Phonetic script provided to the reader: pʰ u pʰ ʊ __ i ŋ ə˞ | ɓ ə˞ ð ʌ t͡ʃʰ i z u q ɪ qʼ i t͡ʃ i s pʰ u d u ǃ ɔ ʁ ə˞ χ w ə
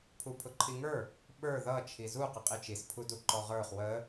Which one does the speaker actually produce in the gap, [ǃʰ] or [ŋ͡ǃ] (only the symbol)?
ǃʰ